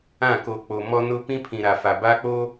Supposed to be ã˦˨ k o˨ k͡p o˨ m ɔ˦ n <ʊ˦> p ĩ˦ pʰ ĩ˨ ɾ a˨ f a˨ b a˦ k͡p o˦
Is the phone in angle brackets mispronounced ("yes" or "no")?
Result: no